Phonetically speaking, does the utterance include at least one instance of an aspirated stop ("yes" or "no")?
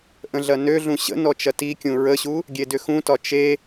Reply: no